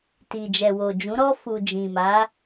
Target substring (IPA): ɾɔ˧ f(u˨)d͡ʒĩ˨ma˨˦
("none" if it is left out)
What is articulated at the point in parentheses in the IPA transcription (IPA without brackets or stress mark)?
u˨